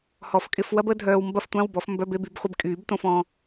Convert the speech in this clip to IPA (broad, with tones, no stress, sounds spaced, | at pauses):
h ɔ˨˩˦ f kʼ ɪ˧˥˧ f w ɐ˥ b ə˥ dʱ œː˧ w m b ɐ˥ f tʷ ã˧˥˧ w b ɔ˨˩˦ f m b œ˧˥˧ b e˧˥˧ b y˨˩˦ b χʷ ɪ˧ b kʼ yː˨˩˦ b t õ˧ f ɔ̃˧